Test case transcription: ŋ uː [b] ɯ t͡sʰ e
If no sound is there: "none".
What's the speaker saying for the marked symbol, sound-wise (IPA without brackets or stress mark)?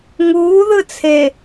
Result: ð